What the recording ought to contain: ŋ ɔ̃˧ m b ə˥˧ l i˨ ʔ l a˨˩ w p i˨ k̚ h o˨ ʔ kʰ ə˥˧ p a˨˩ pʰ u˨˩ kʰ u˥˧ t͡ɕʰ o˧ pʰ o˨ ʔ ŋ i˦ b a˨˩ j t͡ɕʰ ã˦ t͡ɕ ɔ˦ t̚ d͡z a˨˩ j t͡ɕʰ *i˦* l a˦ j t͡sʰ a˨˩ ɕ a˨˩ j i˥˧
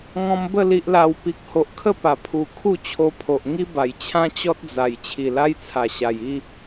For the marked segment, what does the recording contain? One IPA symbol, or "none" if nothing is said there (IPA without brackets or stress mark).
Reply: i˨˩